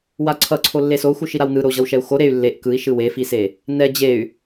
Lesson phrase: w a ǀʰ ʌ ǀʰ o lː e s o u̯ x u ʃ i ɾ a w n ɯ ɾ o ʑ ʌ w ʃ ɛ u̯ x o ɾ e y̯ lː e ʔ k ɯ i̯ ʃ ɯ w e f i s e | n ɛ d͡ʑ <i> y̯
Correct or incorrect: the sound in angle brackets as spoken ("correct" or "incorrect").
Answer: incorrect